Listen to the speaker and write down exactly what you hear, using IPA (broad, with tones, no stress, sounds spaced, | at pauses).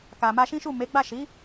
k a˨ m a˧ ʃ ĩ˦ ʃ u˦˨ m e˨˦ ɡ͡b a˦˨ ʃ i˨˦